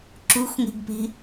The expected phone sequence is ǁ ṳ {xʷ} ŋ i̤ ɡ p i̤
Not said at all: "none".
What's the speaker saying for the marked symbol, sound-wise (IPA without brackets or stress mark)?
xʷ